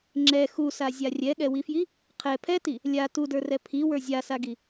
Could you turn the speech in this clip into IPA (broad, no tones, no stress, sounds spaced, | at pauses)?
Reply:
ŋ͡ǁ ɛ x u s a zʲ a rʲ ɛ ɠ ɛ w i f j i | qʰ ɛ pʰ ɛ t i | lʲ a t u d ə˞ r ɛ pʰ i w ə˞ zʲ a s a ɡ i